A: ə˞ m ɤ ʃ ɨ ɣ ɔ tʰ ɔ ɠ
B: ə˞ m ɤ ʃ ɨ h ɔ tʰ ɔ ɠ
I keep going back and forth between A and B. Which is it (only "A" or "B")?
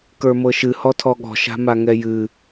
B